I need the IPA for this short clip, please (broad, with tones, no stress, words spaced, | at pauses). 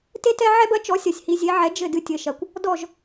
te˥tɛ˥ ʕɛ˥bɐ˩˥t͡ʃɔ˩˥ sʲɐ˩sʲhi˧zʲe˩˥ʕɛ˩˥ d͡ʒɘ˥˩dɨ˧tʲɘ˩ʃɐ˩kʷ | dɔ˥˩ʒ